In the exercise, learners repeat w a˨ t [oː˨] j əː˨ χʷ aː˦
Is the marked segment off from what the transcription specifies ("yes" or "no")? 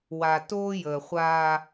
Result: yes